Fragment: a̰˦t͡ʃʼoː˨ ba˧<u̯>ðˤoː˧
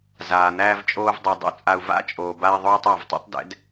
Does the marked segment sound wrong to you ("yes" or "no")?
yes